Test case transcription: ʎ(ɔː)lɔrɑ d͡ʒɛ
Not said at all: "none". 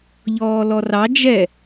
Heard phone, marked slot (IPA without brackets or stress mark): ɔː